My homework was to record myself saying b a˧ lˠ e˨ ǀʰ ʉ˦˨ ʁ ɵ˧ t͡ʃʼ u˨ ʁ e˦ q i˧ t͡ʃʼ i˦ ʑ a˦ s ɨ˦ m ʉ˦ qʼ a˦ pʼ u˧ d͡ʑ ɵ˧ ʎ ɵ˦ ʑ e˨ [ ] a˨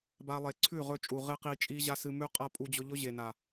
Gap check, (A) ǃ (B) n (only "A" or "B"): B